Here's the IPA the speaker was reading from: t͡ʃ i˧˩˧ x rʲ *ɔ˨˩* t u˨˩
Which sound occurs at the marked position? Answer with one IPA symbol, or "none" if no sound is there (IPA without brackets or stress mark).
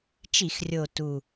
o˨˩